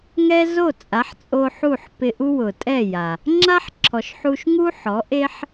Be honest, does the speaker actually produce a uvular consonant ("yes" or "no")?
no